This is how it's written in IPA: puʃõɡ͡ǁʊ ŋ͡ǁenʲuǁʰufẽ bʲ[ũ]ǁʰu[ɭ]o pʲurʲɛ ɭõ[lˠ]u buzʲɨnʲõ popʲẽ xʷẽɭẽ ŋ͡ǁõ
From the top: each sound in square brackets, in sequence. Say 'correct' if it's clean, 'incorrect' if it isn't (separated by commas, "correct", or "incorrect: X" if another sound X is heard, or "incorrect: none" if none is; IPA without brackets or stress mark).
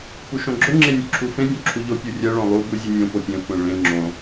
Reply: incorrect: õ, incorrect: ʎ, correct